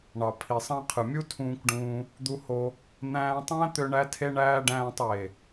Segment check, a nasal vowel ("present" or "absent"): present